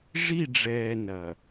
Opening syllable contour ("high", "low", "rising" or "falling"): falling